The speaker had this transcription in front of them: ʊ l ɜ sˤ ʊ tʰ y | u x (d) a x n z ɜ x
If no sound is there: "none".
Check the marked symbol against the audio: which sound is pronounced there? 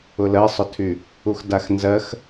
d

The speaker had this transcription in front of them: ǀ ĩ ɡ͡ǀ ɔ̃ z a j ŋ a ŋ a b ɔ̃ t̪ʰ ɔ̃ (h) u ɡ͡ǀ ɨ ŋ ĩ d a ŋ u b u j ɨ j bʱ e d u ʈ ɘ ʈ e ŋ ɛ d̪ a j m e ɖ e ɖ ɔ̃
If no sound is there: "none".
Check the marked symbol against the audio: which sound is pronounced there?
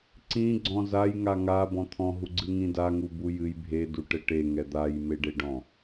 ɦ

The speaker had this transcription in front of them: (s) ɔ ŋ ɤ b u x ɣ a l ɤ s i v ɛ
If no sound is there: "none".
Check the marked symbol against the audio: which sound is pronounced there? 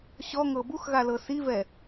ɕ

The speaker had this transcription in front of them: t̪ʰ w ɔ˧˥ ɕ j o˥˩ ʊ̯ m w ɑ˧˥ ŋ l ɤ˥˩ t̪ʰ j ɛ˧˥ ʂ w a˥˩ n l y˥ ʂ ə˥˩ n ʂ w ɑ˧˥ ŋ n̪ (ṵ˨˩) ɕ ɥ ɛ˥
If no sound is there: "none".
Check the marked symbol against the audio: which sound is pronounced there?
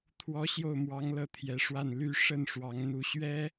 u˧˥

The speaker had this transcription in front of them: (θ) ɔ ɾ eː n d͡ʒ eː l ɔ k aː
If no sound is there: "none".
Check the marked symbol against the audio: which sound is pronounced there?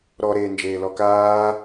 ɾ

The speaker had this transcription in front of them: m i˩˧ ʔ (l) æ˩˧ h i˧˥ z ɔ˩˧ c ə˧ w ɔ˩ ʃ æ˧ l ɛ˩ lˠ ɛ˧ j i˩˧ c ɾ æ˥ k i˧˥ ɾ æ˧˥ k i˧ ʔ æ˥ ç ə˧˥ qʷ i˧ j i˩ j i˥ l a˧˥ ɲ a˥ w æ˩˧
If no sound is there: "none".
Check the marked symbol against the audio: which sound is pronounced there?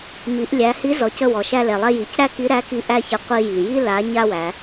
lʲ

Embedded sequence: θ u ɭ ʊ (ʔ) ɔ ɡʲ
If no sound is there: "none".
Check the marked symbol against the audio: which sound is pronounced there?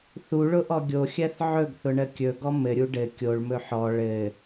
ʔ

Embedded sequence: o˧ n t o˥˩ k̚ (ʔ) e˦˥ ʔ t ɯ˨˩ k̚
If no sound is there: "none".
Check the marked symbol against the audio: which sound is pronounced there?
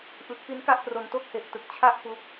h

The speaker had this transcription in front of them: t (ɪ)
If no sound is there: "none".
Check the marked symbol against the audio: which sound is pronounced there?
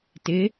ɪ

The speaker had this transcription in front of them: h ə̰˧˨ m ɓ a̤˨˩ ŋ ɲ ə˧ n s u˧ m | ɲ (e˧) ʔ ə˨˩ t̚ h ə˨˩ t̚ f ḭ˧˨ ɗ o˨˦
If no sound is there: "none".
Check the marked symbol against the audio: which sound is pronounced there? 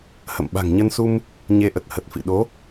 e˧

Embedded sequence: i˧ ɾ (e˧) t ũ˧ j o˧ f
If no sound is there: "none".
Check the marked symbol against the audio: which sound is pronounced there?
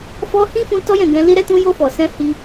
ɛ˧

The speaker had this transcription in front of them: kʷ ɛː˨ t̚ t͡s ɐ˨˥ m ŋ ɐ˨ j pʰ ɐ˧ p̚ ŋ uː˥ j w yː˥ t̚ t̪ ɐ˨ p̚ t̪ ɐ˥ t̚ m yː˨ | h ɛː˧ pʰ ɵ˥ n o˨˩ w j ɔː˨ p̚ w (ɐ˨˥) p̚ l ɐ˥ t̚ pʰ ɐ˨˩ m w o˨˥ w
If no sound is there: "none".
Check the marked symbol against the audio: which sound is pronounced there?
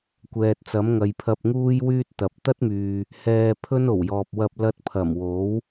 ɐ˧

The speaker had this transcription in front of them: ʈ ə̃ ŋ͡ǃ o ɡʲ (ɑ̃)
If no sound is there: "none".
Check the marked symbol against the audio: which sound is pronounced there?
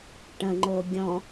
ɔ̃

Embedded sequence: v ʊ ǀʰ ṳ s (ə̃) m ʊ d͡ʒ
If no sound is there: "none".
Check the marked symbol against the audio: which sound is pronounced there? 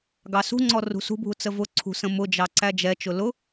ə̃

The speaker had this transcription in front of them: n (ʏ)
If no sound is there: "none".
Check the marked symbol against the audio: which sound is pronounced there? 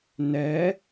ɛ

